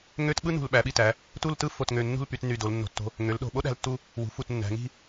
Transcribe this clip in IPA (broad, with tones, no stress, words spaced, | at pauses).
ŋø˥t ɓɯ˥nṳ˧˩lɓæ˩˧ɓi˧˩ tæ˩˧ | tu˥˧ltɯ˥ fo˧˩tŋø˧˩ nːṳ˥˧lpy˧t ny˧˩do˩˧lnːo̤˧˩tːo̤˧ | ŋø˩˧lɗo̤˧˩ɓo˥ ɗæ̤˧ltːu˧ | wṳ˩˧ fu˧˩tnːæ̤˩˧ŋi̤˥˧